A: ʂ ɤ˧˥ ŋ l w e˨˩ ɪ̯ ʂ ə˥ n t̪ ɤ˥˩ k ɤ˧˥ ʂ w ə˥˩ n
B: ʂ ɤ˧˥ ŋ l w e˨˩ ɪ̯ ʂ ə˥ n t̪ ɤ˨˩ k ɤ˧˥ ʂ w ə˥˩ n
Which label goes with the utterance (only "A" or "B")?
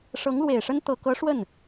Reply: B